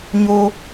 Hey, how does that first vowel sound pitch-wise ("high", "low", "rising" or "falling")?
high